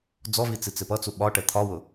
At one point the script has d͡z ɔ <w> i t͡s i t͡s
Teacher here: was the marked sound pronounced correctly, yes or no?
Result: no